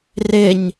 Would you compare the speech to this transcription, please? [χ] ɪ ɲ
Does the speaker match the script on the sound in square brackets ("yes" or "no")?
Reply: no